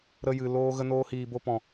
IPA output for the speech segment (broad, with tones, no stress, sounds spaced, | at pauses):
ɾ ə˧ j ɨ˨ l oː˧ ɣ ə˧ n oː˧ h iː˨ b o˧ p ɔ̃˨